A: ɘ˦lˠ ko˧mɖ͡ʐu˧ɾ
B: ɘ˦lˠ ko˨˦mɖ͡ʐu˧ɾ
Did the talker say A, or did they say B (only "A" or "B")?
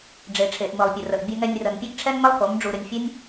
B